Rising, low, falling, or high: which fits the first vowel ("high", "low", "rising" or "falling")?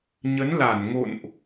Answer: rising